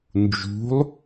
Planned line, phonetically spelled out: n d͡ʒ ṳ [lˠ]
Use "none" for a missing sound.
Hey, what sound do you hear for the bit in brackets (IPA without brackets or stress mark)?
lˠ